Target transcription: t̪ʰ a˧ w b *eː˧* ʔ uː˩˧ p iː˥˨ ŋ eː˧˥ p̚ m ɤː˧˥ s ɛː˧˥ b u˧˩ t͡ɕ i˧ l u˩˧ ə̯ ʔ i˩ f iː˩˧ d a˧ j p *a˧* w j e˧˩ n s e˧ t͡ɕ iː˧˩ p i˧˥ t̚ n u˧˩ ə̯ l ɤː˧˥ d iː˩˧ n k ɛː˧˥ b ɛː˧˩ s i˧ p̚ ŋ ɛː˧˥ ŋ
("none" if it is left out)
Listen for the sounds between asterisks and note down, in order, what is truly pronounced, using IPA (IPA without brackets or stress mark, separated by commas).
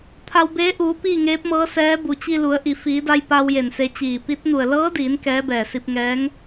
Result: eː˧˥, a˧